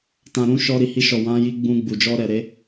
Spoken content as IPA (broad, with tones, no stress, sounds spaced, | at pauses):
t ã˨ ɾ ũ˨˦ ʃ ɔ˧ ɾ i˨ h i˧ ʃ ɔ˨ w ã˨˦ j i˧ ɡ͡b ũ˧ ɡ͡b u˨ d͡ʒ ɔ˧ ɾ ɛ˨ ɾ e˨˦